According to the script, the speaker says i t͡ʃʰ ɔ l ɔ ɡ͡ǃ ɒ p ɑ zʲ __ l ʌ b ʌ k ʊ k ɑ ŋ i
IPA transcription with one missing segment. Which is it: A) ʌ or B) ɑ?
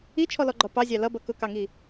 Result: B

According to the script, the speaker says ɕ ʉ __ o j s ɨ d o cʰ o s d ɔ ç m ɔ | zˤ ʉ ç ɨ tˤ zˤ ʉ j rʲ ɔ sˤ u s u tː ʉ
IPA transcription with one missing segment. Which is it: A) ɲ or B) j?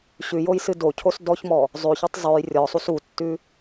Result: B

